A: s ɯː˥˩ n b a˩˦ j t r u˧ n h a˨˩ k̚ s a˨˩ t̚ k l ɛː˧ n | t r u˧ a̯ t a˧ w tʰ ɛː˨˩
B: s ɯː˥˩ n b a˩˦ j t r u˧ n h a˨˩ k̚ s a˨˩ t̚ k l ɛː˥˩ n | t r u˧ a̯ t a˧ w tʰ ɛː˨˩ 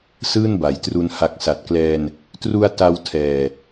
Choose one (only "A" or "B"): A